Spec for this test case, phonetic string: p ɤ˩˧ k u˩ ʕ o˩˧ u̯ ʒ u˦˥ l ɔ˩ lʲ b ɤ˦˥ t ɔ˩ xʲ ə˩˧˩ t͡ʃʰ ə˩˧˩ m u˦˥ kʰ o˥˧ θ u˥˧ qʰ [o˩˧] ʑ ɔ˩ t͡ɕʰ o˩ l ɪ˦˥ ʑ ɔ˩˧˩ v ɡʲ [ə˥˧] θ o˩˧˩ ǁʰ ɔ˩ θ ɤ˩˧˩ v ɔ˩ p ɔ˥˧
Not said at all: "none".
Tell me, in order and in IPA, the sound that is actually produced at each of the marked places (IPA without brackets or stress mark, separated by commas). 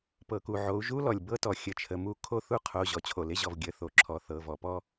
o˩˧˩, ə˩˧˩